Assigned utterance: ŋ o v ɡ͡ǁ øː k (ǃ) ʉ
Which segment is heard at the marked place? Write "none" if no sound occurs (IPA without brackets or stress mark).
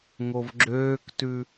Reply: t